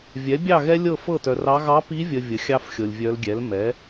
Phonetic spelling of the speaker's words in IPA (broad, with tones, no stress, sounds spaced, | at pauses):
vʲ ɛ˩˥ bʲ ɑ˥˨ ɣ ɛ˥ lʲ ɤ˥˨ f ɤ˥˨ t œ˨ r ɑ˧˥ ɣ ɑ˧˥ p i˧˥ vʲ ə˨ vʲ ə˩˥ xʲ ɑ˥ f xʲ ɤ˨ lʲ vʲ œ˧˥ l ɡʲ ɛ˩˥ l m ɛ˩˥